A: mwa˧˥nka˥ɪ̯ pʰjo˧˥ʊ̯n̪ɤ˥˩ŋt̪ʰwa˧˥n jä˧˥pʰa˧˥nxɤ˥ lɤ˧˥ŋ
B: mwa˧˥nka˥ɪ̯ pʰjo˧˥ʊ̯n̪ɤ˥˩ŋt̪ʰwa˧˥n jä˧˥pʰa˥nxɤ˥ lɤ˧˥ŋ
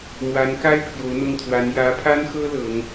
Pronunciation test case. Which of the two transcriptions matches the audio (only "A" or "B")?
B